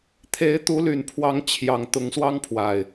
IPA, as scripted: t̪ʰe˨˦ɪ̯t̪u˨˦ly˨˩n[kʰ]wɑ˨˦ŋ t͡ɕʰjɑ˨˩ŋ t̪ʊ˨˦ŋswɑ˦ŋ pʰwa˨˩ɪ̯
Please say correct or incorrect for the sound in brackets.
incorrect